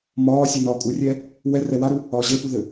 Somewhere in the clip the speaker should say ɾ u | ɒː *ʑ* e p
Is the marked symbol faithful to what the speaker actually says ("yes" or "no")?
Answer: yes